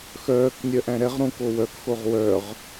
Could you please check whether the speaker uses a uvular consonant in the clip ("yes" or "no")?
yes